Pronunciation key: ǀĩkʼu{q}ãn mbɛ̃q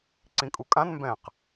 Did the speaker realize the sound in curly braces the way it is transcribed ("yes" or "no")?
no